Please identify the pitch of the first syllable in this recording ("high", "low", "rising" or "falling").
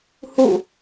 falling